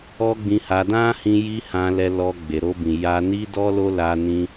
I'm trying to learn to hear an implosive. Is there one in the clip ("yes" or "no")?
no